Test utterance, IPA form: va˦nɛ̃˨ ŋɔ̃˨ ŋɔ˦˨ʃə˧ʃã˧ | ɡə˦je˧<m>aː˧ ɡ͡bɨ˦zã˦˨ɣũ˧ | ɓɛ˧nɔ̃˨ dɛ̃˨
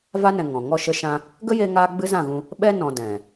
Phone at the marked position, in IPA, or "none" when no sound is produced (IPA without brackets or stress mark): ŋ